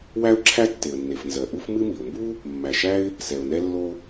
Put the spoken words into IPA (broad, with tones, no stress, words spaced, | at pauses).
wæ˥ʊ̯ǁʰæ˥ tːe˩ə̯nːe˩f nzɜ˩ ʔu˥f mɨ˥mi˩ʊ̯ mbu˥ | mːæ˩ʃæ˥ɪ̯ | sɛ˩ʊ̯nɛ˥lːo˥